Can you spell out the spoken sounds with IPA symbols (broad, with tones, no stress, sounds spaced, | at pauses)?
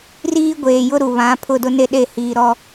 r iː˦ ɡʷ eː˨ j ʊ˦ ɾ u˨ β ã˨˦ pʰ ʊ˦˨ d ʊ˦ n e˦ ɗ e˦˨ h iː˨ ɾ ɔ˦